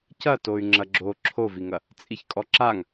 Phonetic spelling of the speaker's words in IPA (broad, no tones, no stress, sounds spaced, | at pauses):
c ɐ t o y̯ ŋ͡ǁ ɐ ɡ͡ǁ o ǁʰ o v i ŋ ɐ | t͡sʼ i ç kʼ ɔ ǁ a ŋ